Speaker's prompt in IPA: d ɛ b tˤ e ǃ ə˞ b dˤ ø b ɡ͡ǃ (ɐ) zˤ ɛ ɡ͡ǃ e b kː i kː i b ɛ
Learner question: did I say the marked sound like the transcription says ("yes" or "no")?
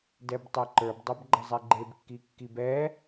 yes